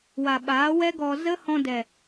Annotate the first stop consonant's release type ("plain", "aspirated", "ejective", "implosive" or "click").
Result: implosive